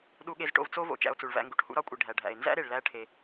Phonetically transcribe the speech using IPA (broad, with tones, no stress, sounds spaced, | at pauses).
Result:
ɗ u˧ ɠ e˧ z ʈ o̰˧ v t͡s o˥ v o̰˩ t͡ʃ æ̰˧ o̯ t͡s u˩ ɭ v æ̰˧ ŋ ɡ u˩ ʈ h ṵ˧ ɾ ɒ˧ kʷʼ i˩ ɖʱ æ˩ ɖʱ æ̰˩ e̯ n z æ̰˥ ɾ e˩ ɭ l æ˧ ʈʰ e˩